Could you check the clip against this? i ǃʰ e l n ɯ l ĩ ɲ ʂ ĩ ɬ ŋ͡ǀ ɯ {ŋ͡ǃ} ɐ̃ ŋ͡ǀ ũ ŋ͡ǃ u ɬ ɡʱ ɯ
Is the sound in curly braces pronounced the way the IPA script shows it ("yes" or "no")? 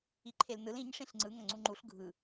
no